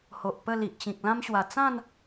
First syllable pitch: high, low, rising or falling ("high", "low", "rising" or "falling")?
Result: low